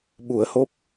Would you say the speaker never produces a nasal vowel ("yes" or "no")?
yes